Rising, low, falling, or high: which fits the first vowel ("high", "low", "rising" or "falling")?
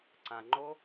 low